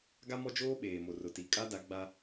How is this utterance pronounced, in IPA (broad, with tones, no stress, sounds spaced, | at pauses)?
ɡ a˦ m ɔ˦ d͡ʒ oː˦ ɓ eː˨ m o˨ r ʊ˨ t i˨ kʼ a˦ d a˨˦ ɡ͡b a˦